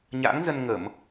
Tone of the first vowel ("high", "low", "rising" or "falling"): rising